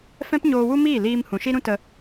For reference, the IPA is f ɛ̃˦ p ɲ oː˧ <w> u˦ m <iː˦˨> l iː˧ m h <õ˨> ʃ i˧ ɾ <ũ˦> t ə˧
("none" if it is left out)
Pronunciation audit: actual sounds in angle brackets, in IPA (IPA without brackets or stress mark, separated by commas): w, iː˦˨, ũ˨, ũ˦